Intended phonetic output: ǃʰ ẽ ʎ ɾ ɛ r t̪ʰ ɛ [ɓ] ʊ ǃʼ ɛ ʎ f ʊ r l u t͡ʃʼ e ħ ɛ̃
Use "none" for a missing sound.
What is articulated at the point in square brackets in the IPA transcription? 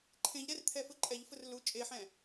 f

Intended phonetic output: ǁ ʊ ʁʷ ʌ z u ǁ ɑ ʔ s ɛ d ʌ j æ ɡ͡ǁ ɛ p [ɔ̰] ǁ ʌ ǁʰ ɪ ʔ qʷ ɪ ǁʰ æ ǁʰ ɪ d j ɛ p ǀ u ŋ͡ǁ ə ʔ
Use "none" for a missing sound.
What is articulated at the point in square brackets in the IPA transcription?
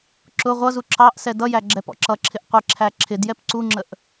ɔ̰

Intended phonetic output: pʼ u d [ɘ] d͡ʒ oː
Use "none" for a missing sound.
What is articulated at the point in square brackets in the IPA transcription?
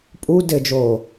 ɘ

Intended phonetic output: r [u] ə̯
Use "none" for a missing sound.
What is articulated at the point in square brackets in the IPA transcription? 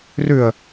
ʉ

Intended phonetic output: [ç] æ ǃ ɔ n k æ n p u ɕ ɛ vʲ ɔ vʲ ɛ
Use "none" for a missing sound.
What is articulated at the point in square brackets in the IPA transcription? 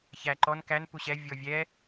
ç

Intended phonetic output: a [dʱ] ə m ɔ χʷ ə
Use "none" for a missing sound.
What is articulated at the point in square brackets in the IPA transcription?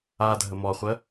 dʱ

